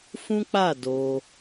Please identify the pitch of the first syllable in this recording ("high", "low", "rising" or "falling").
high